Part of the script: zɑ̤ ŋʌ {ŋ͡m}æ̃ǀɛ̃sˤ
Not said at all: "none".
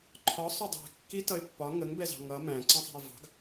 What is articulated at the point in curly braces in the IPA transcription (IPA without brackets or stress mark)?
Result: m